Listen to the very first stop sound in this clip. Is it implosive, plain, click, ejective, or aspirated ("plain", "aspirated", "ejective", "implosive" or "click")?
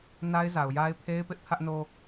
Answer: aspirated